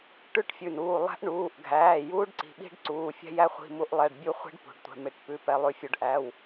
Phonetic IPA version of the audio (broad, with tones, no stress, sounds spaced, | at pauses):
ʈ ʉ˦˥ ʈ fʲ ʉ˩˧˩ n uː˩˧˩ lˠ æ̤˦˥ ʔ ɳ uː˩˧˩ ʔ ɡʱ æː˩˧˩ j uː˦˥ ɖ ǀ i̤˩˧˩ ɓ i̤˦˥ ɖ ǀ uː˩˧˩ fʲ ɛ̤˦˥ j æ˦˥ χʷ i̤˩˧˩ m u˦˥ ʔ lˠ ɛ˩˧˩ ɖ bʲ u˦˥ χʷ i̤˦˥ ɖ p ṳ˩˧˩ ɖ tʷ ɛ̤˩˧˩ m ɪ˩˧˩ ʈ p ʉ˩˧˩ p ɛ˩˧˩ lˠ ʉ˩˧˩ fʲ u˩˧˩ ɖ ʔ æ˩˧˩ w